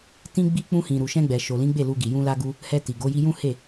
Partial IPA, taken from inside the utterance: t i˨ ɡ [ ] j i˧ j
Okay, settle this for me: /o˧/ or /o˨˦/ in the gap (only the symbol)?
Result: o˨˦